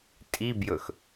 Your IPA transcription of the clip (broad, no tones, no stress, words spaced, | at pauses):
tʼibjɵx